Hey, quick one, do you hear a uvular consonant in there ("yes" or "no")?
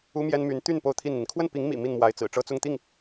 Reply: no